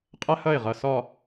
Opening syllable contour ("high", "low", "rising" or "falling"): high